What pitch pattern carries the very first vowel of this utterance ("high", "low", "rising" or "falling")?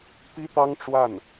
high